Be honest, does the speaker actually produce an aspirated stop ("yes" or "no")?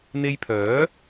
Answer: yes